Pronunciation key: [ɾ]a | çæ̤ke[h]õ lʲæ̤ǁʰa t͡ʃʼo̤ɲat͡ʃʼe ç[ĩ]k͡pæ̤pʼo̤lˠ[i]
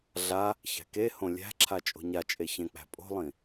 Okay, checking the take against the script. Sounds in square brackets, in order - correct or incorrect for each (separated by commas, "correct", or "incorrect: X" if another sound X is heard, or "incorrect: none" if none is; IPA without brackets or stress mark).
incorrect: ɮ, correct, incorrect: ẽ, incorrect: ĩ